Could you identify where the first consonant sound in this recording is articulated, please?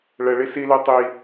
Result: retroflex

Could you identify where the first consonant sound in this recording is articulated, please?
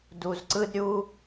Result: alveolar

